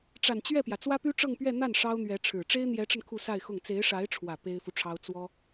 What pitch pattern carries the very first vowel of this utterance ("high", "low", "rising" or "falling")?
low